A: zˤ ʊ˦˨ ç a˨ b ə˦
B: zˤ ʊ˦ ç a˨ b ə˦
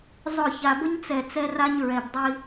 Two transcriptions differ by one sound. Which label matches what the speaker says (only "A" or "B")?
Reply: A